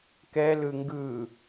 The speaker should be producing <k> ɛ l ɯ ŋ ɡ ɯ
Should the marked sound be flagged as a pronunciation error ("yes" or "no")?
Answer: no